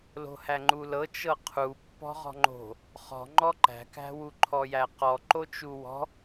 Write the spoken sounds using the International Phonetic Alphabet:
lo̤hæŋ͡ǃulɤ t͡ʃɤqʰu pːɔ̤ʁɔ̤ŋ͡ǃo̤ | χɔ̤ ŋ͡ǃɔǃæ̤kæ̤wu ǃʰɔjæqɔ ǃot͡ʃuwɔ̤

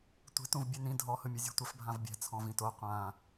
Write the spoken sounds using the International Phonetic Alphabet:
tʷe̤tũv bʲenĩ dʱɔhɯmʲɯzʲo̤ tʷɛfbʱãvbʲɛ̤t͡sʰɔ̃v ĩto qʷã

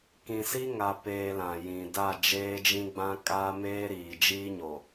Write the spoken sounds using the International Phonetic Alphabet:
kĩ˨si˦ŋa˨peː˨ lã˨jĩ˨ da˦˨ d͡ʒeː˦d͡ʒĩ˦ɡ͡bã˦ kʼaː˦meː˦ɾiː˨ d͡ʒiː˦ɲo˨

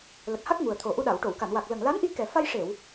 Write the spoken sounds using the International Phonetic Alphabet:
lə˨˩k̚ha˦˥k̚ŋu˨˩ə̯t̪ʰo˨˩ ʔu˧ɗa˨˩˨wʈo˨˩˨wka˨˩˨n wa˨˩k̚lə˨˩ŋ la˧˥nʔi˧kɛ˨˩ fa˧jʂe˨˩˨w

